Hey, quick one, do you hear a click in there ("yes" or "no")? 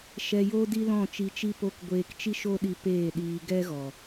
no